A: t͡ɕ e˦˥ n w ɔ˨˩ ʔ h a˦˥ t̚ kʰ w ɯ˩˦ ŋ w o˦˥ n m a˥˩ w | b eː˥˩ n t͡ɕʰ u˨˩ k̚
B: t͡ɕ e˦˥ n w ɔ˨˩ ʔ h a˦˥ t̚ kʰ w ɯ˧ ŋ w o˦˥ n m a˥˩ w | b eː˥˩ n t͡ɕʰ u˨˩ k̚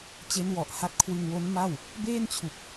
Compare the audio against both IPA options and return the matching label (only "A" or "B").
B